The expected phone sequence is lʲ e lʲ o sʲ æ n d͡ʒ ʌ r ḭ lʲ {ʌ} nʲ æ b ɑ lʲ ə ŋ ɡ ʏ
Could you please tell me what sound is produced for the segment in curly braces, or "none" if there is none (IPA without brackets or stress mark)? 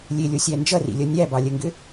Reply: ʌ